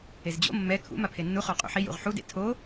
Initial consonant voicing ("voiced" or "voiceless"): voiced